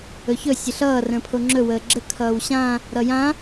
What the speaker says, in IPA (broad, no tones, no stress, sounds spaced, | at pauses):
ɵ ç ɵ sʲ ə ɬ ʌː r ə̃ː pʰ o ŋ͡ǁ ɵ w əː ɡ͡ǁ ə kʰ ʌː w ɕ ã | ɾ ʌ j ã